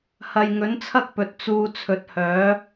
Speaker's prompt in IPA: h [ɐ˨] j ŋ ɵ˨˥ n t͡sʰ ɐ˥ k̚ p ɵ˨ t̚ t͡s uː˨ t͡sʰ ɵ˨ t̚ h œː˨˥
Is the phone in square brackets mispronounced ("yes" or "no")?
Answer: no